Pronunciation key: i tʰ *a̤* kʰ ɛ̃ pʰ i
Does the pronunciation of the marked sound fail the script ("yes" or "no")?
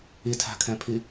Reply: no